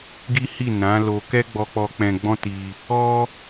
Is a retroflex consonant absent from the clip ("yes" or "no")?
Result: yes